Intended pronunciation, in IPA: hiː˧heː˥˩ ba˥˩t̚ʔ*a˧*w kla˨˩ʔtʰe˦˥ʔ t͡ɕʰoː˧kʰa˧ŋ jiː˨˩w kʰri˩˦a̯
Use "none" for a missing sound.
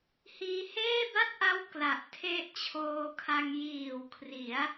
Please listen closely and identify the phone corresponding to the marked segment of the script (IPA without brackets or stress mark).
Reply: a˦˥